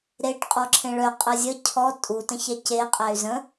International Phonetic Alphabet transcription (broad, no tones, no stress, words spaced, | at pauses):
ɾeʈ qʼɔǁʰẽɭœ qʼɜzʲə cʰɔ tʼu tə̃çɛce qʼæy̯zə̃